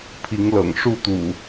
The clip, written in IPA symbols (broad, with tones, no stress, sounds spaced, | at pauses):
pʰ i˨˦ ŋ l ɤ̰˨˩ ŋ ʂ u˥˨ t̪ ṵ˨˩